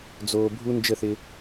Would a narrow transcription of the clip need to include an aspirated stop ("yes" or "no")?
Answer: no